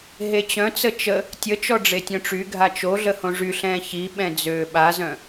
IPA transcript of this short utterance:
ɦ e t͡ɕ œ̃ t͡s ə t͡ʃ ə | tʲ ə t͡ʃ ɔ ɖ͡ʐ e tʲ œ̃ ʈ͡ʂ y ɡʱ a t͡ʃ o ɮ ə h õ ʐ y ɬ ɛ̃ː ç i ɓ ɛ̃ d͡z øː ɓ a z œ̃

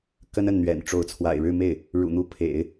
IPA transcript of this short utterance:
k ə˥ n ə˥˩ n n̪ ɥ ɛ̰˨˩ n ʈ͡ʂ o˧˥ ʊ̯ t͡sʰ w a̰˨˩ ɪ̯ ɻ ɻ̩˥˧ m e˥˩ ɪ̯ | ɻ ṵ˨˩ n̪ u˧˥ pʰ ḛ˨˩˦ ɪ̯

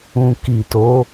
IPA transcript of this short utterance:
ũ˨ k i˨ t o˨˦

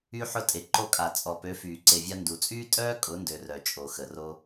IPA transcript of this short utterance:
y˧ ħ ʊ˧ tʼ e˨ ǃ o˧ kʼ a˨ t͡sʼ ɔ˨ p ø˨˦ f yː˨ ǀ e˨ vʲ a˧ n d u˨ t͡sʼ yː˦ tʼ œː˦ kʼ ʊ˨˦ n d ø˨ r œ˨ t͡ʃʼ o˨ x ə˨ r o˧

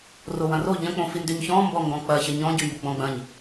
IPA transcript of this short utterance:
r o w ɐ̃ r o ʎ ɐ̃ k͡p õ f i n d y ɲ ç ɔ̃ m b ɔ ŋ ɡ ɔ̃ k͡p ɐ ç ɐ ɲ ɔ̃ ɟ y m b ʊ ɡ͡b ɔ̃ ɡ͡b ɐ̃ ɲ

